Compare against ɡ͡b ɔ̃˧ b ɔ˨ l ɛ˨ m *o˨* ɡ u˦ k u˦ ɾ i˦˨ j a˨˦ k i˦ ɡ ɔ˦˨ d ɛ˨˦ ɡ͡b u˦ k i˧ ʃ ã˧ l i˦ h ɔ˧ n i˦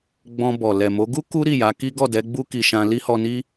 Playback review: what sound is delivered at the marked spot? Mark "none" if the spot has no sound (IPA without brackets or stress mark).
o˨˦